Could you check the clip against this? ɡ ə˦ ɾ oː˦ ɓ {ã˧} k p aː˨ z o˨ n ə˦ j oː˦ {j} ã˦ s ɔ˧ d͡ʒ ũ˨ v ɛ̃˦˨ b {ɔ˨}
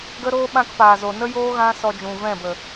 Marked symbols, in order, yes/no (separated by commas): no, no, no